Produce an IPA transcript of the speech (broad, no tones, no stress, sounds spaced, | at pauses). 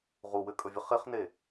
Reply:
ʁ u w ɘ kʼ ɵ vʲ ə χ e χ n e